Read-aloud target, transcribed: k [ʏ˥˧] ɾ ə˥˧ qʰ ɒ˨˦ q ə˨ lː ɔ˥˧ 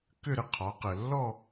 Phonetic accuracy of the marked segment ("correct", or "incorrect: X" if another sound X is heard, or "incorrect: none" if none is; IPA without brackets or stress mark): correct